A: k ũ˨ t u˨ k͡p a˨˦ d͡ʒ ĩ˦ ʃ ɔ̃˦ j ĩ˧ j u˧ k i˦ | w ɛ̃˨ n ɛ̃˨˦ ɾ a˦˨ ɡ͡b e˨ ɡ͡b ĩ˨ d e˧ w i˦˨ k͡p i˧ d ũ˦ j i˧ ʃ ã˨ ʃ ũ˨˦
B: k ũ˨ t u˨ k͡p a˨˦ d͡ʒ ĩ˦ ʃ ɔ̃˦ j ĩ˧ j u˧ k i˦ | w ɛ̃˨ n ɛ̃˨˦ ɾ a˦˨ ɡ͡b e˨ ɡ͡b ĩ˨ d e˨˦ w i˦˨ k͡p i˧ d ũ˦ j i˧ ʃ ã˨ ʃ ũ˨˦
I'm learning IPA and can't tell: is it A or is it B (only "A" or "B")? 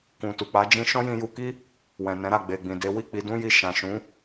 B